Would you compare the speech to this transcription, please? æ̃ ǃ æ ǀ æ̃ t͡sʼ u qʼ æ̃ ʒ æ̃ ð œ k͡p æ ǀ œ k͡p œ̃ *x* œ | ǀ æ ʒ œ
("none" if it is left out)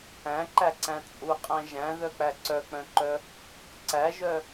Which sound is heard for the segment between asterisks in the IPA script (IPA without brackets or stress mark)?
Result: ǃ